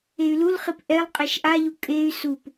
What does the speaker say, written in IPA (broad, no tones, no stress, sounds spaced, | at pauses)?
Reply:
e y̯ l u l χ i p ʔ ɛ lˠ qʼ ɛ ʃ ʔ a ʎ u kʼ e y̯ s u p